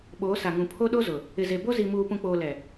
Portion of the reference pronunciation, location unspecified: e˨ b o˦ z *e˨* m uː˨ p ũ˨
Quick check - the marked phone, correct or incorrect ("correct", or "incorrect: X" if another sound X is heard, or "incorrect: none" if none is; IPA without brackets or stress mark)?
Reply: incorrect: i˨